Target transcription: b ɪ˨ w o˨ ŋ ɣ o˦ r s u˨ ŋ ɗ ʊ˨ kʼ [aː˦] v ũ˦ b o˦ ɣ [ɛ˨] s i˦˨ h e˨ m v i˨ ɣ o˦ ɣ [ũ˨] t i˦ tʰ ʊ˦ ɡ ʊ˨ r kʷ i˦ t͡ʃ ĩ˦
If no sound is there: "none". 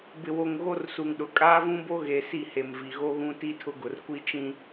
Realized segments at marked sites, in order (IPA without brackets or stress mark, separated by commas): aː˦, e˨, ũ˦